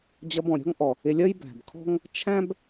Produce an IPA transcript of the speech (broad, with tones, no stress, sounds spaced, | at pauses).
d͡ʑ ʌ˧ b ɔ̃˩ ɾʲ ɔ̤˥ ŋ ʔ ɔ˩ | ɪ˧ lʲ ʌ˥ j b æ̤˩ b kʰ ɔ̤˥ ŋ | t͡ʃʰ æ̃˥ b